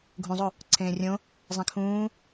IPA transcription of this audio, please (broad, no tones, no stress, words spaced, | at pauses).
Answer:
ɡʱũzˤo | ǀʰẽːrʲõ | zˤẽkʰũː